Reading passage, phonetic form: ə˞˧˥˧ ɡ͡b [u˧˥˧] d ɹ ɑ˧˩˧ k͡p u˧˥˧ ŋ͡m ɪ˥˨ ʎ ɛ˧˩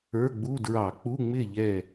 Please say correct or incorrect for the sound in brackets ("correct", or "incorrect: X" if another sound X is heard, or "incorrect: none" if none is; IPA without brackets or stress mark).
correct